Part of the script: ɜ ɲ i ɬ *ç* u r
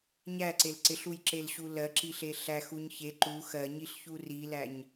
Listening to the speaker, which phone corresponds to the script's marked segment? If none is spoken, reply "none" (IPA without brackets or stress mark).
ç